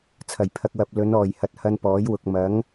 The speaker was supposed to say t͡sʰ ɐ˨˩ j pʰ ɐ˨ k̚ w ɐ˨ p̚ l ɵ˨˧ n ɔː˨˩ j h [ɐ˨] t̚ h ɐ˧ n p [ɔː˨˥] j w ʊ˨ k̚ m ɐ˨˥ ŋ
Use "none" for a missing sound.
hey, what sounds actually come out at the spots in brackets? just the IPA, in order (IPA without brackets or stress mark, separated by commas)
ɐ˨, ɔː˨˥